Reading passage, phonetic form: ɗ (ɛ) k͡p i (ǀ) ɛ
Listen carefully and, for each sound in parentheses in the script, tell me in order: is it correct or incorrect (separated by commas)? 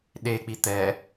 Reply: incorrect, incorrect